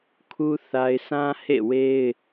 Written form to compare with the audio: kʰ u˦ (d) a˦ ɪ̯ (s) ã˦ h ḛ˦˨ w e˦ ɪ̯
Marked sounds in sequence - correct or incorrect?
incorrect, correct

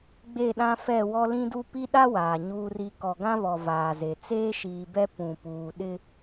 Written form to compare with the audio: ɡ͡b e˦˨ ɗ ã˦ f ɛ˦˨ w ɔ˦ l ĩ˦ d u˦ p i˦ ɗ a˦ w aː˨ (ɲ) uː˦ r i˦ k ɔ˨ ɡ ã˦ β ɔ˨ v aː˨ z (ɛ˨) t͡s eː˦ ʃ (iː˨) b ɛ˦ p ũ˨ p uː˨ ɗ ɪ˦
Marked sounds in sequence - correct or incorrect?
correct, incorrect, correct

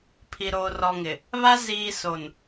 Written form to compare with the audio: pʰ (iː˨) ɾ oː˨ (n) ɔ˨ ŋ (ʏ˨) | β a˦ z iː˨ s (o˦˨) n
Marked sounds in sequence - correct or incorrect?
incorrect, incorrect, incorrect, incorrect

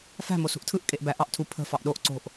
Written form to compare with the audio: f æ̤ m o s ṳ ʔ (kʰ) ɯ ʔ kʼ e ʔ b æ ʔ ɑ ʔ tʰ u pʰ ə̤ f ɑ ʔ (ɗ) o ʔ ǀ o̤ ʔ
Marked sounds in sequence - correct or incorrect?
incorrect, correct

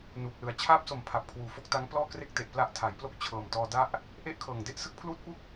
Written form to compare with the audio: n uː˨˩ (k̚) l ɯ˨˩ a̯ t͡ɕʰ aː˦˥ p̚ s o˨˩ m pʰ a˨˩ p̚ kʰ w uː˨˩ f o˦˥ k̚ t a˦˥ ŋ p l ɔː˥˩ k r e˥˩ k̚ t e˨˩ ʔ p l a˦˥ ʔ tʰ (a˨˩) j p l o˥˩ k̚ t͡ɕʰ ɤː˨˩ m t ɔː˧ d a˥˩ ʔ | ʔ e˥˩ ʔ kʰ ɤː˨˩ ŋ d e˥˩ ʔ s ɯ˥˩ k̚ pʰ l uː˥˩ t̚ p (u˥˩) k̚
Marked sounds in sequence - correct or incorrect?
correct, incorrect, correct

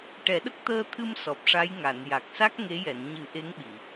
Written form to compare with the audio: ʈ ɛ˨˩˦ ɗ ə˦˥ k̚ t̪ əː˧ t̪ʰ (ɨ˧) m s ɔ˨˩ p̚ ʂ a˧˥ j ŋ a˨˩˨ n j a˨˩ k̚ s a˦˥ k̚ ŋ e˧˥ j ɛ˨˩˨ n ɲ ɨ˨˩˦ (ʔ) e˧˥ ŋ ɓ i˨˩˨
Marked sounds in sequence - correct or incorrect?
correct, correct

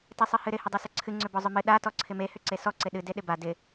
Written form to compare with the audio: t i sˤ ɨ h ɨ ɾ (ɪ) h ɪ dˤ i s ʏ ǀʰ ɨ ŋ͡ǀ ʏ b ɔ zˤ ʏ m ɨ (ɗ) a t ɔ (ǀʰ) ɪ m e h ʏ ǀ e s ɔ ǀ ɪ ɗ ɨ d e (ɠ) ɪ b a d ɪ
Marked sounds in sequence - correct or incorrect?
correct, correct, correct, incorrect

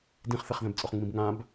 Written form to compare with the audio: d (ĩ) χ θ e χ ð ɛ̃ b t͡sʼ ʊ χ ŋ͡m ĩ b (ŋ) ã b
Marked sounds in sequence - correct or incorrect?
correct, correct

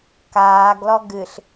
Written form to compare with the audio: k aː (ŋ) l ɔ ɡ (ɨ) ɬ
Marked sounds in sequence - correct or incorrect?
incorrect, correct

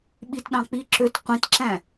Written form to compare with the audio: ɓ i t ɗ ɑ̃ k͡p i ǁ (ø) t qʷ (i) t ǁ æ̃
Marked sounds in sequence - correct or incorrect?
correct, incorrect

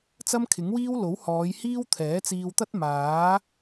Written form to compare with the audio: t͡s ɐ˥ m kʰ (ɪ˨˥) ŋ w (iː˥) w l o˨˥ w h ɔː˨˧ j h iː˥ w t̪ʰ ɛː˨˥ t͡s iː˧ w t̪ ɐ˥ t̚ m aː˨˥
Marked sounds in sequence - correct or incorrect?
correct, correct

